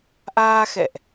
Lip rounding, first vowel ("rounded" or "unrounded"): unrounded